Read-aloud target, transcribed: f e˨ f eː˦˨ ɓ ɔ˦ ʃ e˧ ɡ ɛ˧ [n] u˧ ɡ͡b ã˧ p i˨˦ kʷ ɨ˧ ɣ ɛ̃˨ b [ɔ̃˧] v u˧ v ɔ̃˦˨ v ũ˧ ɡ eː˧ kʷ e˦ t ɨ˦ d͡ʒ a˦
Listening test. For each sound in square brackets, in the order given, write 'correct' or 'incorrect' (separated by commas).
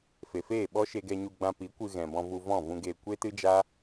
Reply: incorrect, correct